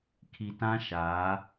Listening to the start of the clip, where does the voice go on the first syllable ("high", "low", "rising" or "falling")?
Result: low